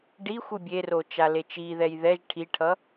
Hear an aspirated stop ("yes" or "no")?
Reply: yes